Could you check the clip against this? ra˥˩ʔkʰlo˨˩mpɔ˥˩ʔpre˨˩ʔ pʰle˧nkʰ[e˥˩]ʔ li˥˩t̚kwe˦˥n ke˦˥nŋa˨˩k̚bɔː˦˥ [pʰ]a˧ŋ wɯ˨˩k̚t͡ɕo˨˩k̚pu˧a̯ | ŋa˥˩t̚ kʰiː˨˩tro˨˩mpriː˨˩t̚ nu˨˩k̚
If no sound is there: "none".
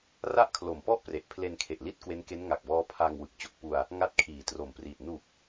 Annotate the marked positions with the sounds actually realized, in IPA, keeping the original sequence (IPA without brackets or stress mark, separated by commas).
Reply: e˨˩, pʰ